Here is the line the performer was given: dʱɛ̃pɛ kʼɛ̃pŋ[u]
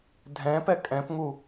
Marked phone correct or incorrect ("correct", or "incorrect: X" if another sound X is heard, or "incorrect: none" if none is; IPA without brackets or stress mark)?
correct